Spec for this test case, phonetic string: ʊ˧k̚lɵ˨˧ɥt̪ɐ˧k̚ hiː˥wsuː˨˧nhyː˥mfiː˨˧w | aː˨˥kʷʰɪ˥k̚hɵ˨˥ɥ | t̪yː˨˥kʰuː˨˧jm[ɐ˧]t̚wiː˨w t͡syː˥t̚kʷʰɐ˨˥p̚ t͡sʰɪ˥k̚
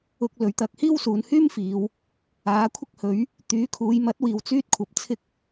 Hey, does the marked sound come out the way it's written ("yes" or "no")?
no